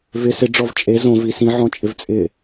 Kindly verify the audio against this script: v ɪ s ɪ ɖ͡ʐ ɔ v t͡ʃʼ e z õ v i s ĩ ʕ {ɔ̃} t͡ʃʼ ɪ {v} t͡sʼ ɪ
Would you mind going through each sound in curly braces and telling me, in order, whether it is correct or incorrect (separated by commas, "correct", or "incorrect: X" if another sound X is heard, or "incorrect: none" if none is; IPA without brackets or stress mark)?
correct, correct